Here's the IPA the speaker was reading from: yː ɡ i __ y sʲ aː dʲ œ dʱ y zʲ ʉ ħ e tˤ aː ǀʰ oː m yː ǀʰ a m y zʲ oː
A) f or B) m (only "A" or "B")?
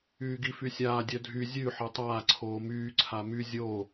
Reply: A